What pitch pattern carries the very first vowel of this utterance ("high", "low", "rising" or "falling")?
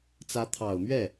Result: rising